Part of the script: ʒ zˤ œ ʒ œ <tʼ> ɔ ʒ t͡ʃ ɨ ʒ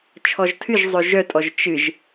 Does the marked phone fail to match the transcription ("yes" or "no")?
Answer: no